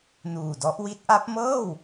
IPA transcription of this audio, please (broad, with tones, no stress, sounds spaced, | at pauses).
n uː˨˩ d ɔ˦˥ ʔ w i˦˥ t̚ ʔ a˦˥ p̚ m ɤː˥˩ w